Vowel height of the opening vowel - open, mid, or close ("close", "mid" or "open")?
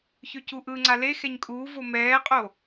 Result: mid